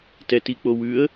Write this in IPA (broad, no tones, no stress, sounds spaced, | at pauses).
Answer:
t ɛ t i k͡p o w ʉ ə̯